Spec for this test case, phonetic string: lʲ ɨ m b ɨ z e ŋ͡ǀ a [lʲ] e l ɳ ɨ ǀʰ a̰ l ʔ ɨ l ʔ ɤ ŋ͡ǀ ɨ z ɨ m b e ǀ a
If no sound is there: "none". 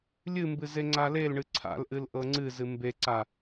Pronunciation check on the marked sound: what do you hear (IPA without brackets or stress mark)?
l